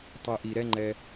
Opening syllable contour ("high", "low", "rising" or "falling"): low